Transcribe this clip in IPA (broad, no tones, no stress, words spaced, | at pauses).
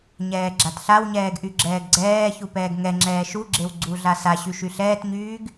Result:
ɲɛːɡ͡ǁatɬawɲɛːɡ ʔyɡ͡ǁɛːɡɡ͡ǀɛːçu pɛːɡŋɛŋ͡ǁɛː ʃuɡ͡ǁew ɡ͡ǀuɮa saɕy ʃyɬɛːtɲyːɡ